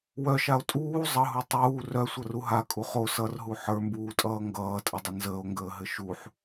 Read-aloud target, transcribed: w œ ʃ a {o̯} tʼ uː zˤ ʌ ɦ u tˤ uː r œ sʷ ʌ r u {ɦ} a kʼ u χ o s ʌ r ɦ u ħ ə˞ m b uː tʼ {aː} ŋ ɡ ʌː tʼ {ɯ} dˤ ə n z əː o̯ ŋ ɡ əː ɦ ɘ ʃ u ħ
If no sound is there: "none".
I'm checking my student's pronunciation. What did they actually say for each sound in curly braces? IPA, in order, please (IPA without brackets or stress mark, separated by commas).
o̯, ɦ, ʌː, ə